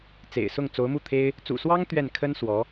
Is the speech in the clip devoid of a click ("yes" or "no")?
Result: yes